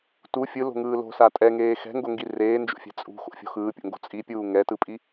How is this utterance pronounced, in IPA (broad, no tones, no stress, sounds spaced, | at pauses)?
t u fʲ ɯ l o̤ ŋ ɯː l o̤ s a tʼ ɛ ŋ eː x ɛ̤ ŋ ɡ o ŋ ɡ i r eː n d͡ʒ o̰ fʲ ɛ̤ t͡sʼ ṳ x o̰ fʲ o̤ x ɯː pʲ o̰ ŋ ɡ o̤ t͡sʼ i pʲ uː ŋ ɛ t ɯ pʼ i